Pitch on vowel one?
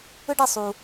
high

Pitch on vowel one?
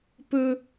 high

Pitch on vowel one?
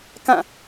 falling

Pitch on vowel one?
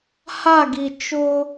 falling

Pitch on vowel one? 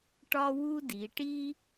high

